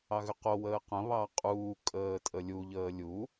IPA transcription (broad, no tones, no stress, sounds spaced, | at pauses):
ɑ ɣ ʏ q o w əː q ə̃ β ɑ qʼ uː kʼ əː tʼ ə lʲ u ʎ əː lʲ u